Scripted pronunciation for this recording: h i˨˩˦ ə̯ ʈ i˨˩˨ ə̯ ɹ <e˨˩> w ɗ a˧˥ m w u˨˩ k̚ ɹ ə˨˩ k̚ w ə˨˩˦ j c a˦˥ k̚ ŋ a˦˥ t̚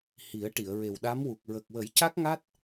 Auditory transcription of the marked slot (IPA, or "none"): e˨˩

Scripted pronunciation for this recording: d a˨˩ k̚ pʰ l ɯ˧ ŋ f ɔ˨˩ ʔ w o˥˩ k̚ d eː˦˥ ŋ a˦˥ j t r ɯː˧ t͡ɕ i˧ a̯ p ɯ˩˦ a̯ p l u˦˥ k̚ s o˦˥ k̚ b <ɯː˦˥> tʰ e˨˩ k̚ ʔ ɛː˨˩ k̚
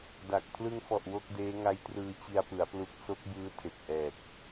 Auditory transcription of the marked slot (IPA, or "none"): ɯː˦˥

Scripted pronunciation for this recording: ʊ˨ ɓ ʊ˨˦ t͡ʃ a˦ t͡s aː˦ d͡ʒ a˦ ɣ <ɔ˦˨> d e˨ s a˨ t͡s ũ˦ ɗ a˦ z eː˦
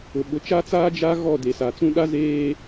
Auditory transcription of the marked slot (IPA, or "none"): ɔ˦˨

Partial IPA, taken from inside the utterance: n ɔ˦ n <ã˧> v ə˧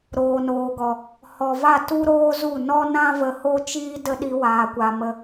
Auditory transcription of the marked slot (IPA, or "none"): ã˦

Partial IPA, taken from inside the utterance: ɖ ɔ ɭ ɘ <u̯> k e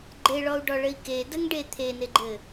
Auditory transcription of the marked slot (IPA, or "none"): i̯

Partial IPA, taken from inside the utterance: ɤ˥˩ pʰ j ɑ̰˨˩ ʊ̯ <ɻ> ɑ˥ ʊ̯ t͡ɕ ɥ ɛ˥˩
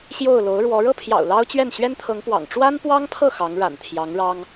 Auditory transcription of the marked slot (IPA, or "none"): l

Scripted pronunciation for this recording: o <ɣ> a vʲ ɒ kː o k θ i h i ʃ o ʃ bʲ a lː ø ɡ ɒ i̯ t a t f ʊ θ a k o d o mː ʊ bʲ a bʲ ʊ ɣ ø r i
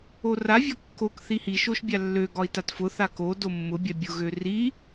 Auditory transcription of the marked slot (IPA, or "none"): r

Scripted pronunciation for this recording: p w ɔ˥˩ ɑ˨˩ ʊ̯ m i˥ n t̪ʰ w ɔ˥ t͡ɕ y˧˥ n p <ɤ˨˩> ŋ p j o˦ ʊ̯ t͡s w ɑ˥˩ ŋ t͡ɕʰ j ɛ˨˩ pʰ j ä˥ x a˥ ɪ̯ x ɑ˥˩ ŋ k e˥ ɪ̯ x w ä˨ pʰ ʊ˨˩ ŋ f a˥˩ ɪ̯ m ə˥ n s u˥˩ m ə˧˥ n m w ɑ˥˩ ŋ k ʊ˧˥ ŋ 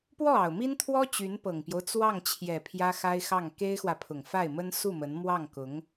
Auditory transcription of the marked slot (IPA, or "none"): ɤ˨˩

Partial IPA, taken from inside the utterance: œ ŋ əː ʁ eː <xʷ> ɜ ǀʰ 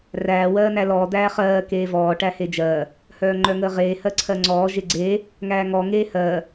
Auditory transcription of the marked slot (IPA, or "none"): h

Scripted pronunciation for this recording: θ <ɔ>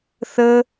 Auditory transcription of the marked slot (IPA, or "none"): ə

